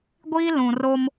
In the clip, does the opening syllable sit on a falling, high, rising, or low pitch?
high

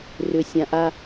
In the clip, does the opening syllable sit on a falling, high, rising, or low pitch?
low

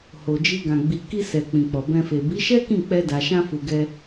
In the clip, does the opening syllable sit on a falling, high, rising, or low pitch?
low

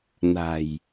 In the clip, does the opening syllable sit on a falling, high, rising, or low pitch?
low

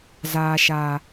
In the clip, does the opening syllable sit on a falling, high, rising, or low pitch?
low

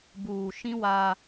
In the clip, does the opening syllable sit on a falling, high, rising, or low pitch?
low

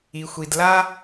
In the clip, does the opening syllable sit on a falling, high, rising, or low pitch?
low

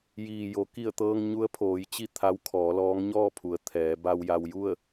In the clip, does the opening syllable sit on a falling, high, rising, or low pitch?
low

